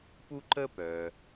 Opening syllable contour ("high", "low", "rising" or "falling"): high